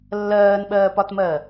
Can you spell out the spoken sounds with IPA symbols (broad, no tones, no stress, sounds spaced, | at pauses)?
lː ɜː n ɓ ɜː p ɒ t m ɜ